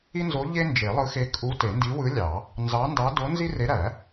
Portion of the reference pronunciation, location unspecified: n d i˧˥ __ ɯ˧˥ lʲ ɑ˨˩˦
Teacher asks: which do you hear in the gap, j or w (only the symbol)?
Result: w